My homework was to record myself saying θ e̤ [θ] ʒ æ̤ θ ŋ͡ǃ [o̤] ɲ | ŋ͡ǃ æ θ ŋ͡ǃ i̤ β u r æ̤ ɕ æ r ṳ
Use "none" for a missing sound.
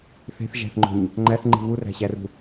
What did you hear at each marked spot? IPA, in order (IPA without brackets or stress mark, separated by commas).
θ, o̤